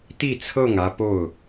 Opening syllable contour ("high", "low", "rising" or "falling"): falling